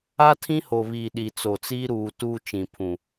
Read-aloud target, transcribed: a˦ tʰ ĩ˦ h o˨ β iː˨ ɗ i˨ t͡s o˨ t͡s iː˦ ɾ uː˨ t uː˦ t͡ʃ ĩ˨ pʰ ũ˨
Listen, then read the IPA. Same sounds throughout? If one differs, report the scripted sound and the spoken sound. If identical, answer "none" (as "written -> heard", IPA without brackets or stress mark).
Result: none